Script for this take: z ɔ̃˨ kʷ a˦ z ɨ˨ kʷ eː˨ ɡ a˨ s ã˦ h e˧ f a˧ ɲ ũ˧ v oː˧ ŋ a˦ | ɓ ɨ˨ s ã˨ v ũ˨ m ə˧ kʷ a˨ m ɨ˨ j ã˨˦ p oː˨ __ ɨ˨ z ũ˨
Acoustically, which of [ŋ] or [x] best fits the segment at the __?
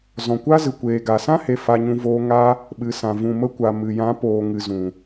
ŋ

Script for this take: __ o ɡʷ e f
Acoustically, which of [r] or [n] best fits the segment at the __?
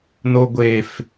n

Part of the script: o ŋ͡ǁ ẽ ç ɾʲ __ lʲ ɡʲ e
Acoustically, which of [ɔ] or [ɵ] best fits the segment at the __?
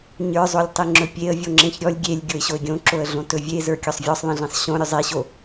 ɔ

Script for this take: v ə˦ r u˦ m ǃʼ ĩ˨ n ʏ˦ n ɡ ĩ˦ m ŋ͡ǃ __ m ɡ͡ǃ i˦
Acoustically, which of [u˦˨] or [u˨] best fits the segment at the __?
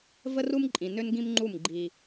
u˦˨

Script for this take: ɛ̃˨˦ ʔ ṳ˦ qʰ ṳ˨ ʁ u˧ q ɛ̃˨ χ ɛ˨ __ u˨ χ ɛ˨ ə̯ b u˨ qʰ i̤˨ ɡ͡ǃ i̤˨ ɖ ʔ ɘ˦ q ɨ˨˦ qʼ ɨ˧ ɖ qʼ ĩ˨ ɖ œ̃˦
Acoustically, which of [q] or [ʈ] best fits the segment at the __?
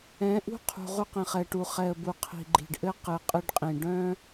ʈ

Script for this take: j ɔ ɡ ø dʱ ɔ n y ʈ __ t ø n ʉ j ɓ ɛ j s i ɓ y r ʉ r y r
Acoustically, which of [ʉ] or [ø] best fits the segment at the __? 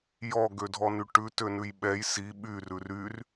ʉ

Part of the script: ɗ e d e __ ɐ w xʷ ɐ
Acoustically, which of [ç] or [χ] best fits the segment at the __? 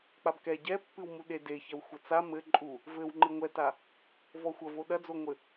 ç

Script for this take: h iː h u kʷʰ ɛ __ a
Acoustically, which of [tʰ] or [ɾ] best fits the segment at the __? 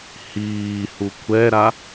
ɾ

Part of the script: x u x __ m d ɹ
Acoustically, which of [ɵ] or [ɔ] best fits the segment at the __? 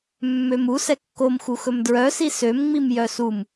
ɵ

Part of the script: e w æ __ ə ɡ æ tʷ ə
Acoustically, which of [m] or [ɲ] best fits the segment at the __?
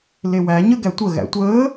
ɲ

